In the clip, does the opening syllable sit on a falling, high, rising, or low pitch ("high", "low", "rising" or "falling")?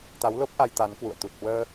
rising